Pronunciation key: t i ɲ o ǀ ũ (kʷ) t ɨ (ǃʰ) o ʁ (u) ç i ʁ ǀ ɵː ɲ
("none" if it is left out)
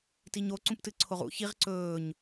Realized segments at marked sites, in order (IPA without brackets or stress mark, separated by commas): p, ǀʰ, ṵ